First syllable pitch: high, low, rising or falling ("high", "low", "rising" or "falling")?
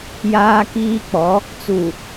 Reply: high